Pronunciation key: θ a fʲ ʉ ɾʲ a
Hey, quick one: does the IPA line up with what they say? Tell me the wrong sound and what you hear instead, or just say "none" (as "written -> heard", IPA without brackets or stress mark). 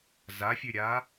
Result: θ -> z